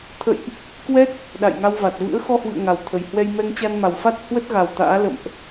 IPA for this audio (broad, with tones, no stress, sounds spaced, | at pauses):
t̪ʰ ə̰˧˨ j ʔ | k w ɛ˦˥ t̚ | ɗ a̰˧˨ j ŋ a˧ w v a˨˩ t̚ v ɨ̰˧˥ ə̯ x ɔ˧ h w ɨ̰˧˨ ə̯ ŋ a˨˩ w t̪ʰ ə˨˩ j h w ɛ˧ j m ɛ˧ ŋ t͡ɕ a˧ n m a˨˩ w f a˦˥ t̚ h w ə˦˥ t̚ ɣ a˨˩ w t̪ a̰ː˧˥ l ə̰˧˨ m ʔ